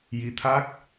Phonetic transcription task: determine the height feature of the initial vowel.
high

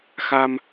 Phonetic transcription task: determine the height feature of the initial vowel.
low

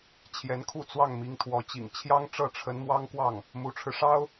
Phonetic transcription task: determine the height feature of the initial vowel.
mid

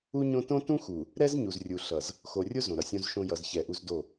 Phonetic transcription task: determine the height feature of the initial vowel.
high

